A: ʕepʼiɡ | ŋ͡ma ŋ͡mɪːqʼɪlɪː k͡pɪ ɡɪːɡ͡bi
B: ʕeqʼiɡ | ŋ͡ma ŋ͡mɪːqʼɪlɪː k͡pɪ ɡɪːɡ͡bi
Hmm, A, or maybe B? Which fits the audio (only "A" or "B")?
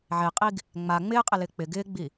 B